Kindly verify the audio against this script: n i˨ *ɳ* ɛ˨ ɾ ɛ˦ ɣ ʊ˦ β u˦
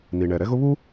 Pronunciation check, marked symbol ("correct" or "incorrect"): correct